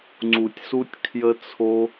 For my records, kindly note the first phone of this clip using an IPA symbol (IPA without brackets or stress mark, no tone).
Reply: ŋ͡ǀ